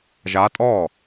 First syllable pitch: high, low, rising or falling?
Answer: rising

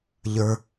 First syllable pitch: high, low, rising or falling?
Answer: low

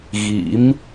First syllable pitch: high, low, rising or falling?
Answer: rising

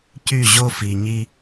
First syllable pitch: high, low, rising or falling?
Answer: falling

